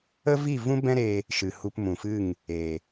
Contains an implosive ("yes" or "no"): no